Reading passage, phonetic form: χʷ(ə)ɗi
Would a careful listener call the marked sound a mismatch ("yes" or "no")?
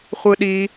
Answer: yes